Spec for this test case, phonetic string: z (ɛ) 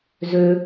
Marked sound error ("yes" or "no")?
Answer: yes